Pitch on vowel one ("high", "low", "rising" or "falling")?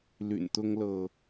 low